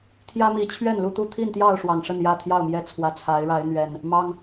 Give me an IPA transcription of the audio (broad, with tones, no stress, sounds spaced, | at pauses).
t̪ʰ j ä˦ m i˨˦ t͡ɕʰ ɥ ɛ˥˨ n l u˥˨ t̪ u˥˨ t̪ʰ i˥˨ n t̪ j ɑ˥˨ ʊ̯ ʂ w ɑ˨˩ ŋ ʂ ə˥˨ n j ä˥˨ t̪ʰ j ɑ˥˨ ʊ̯ m j ɛ˥˨ t͡sʰ w ä˨˦ t͡sʰ a˨˦ ɪ̯ ɻ a˨˦ ɪ̯ n̪ ɥ ɛ˨˩ n | m ɑ˦ ŋ